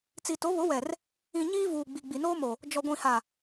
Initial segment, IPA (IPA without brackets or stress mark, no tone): t͡s